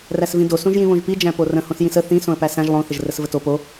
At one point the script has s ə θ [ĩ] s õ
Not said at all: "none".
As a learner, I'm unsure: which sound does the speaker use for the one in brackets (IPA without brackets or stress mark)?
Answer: ĩ